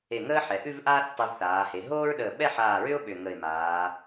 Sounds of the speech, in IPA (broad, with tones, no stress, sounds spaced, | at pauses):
e˧˩ ŋ əː˥ ħ ɛ˩˧ ʔ ʉ˥˧ v ʔ aː˥ θ tˤ ʉ˧ v θ aː˩˧ h e˩˧ ɦ oː˥ ɹ ɗ əː˧˩ ɓ ɛ˥˧ ħ aː˧˩ ɹ ʏ˥ ʊ̯ ɓ ʏ˧˩ ŋ ə˧˩ ɪ̯ m aː˩˧